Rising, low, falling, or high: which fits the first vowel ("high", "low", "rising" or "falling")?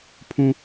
high